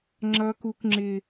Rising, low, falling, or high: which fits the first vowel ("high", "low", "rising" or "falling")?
high